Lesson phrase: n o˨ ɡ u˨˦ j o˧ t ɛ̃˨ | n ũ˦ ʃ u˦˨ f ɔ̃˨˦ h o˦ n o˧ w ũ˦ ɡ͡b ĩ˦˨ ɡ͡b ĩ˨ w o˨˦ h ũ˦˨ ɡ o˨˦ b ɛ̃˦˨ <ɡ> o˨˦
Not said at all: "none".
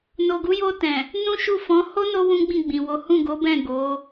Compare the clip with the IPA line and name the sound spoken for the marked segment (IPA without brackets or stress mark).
ɡ